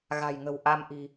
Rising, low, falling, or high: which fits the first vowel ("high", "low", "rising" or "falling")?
low